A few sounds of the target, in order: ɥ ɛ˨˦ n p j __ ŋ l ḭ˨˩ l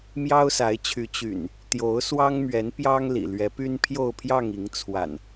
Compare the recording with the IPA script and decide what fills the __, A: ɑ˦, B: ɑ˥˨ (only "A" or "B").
A